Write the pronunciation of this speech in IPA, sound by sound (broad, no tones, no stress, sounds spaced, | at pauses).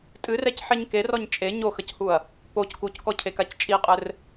tʼ ɨ r ɛ c ħ ɛ ɲ k e r ɔ ɲ t͡ʃʼ e ɲ o x ɐ c h u ɐ̯ | p o c k u c k ɔ cʰ e k a c t͡ʃʼ i qʼ ɘ r